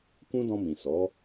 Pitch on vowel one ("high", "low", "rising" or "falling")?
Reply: high